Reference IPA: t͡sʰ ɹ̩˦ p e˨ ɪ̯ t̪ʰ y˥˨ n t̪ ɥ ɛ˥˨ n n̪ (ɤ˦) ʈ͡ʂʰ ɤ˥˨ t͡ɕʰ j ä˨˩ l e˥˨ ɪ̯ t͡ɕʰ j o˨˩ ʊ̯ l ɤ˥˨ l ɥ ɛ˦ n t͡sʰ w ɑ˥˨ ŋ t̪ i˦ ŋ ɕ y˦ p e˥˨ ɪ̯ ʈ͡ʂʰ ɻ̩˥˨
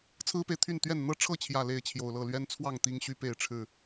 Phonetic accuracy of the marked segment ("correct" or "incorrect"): correct